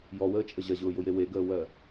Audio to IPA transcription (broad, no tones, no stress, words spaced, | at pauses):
jɔwəːt͡ʃʼə ʑɐʑʊːjʊje weɡəːwɜ